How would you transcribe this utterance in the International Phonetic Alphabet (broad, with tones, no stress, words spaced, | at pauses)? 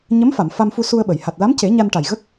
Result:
ɲə˧˥mfa˨˩˨m fa˧mfu˧su˧ə̯ɓə˨˩˨j ha˨˩t̚la˧˥mce˨˩˦ ɲa˧nʈa˨˩j ɣə˦˥k̚